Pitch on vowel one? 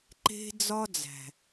high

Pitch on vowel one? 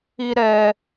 high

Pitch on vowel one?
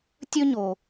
high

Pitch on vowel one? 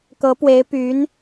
rising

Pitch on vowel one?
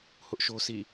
high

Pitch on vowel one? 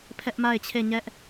high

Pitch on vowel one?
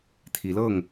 rising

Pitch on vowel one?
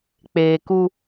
low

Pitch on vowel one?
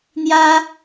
high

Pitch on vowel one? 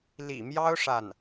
low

